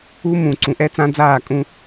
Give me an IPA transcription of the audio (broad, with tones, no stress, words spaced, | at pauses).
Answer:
u˦ mũ˨ǀũ˨ʔɛ˦ t͡sã˦d͡zaː˦˨kʼũ˦